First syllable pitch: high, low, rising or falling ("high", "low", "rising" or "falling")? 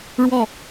falling